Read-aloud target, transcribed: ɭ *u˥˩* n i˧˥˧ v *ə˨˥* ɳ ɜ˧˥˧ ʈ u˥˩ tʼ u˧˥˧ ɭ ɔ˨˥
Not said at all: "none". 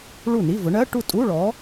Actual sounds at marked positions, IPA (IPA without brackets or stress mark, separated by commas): u˥˩, ʊ˨˥